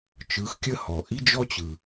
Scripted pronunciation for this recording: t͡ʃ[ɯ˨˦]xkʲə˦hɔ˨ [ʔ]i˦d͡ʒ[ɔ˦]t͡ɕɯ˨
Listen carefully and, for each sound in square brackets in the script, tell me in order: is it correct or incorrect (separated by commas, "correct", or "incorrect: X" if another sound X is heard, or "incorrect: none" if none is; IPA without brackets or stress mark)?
correct, correct, correct